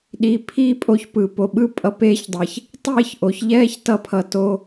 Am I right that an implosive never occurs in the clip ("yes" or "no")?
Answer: no